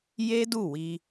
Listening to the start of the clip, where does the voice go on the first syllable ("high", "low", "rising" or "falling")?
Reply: high